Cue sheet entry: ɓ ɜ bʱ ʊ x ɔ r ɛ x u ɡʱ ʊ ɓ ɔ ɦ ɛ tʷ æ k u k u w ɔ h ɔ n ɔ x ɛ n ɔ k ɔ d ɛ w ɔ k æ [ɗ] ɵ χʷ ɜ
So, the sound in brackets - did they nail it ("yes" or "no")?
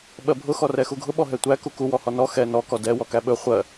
no